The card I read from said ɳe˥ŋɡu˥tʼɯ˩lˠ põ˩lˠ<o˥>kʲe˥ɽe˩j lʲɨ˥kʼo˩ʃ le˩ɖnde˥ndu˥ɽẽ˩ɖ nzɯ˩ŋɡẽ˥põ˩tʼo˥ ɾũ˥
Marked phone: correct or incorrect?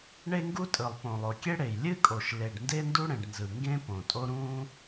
incorrect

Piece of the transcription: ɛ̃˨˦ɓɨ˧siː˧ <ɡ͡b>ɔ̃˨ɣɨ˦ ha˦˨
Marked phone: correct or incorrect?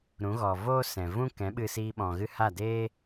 incorrect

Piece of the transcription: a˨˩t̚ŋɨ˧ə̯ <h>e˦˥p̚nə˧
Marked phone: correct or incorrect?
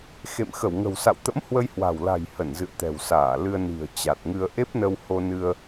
incorrect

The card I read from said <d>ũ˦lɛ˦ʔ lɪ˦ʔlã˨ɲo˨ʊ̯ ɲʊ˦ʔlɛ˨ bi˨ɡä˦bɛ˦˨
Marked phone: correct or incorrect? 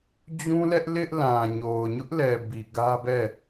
incorrect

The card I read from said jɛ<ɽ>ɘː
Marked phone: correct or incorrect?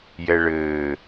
incorrect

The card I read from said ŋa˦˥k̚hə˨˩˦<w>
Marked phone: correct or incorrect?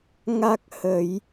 incorrect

